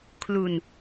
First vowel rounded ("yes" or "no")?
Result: yes